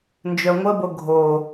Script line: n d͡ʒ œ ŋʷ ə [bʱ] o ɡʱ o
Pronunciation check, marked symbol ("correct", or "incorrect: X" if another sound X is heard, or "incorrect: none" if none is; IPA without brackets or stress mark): incorrect: b